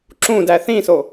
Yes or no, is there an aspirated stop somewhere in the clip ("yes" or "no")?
no